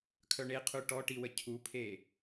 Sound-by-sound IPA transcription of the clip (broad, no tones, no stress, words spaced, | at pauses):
kʰœɳeqʰu ʈɔʈiwə cʰupʰe